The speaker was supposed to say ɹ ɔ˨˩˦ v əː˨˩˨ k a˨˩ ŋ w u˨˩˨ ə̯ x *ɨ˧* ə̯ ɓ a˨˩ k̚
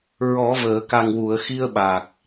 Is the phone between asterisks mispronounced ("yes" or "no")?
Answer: yes